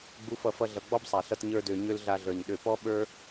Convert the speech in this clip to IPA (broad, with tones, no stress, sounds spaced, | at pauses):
ɡ͡b u˧ f ʌ˧ f ʌ˧ ɮ ʌ˨ ɡ͡b ɔ˦ b sˤ a˨ ɬ ʌ˧ t ɲ ə˞˧ d ø˨ ɲ ø˦ l ɮ a˧ ɮ ə˞˨ ɲ ɗ ø˧ p ɔ˦ ɓ ə˞˦